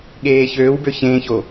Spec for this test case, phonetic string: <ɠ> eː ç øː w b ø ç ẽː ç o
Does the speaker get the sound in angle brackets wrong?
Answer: no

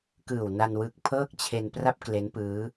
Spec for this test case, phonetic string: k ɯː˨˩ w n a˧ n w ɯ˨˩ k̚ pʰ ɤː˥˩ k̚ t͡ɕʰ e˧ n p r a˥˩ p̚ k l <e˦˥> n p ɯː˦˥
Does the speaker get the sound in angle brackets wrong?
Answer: no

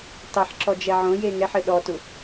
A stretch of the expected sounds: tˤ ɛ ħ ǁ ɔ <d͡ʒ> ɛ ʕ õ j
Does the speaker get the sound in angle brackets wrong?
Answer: no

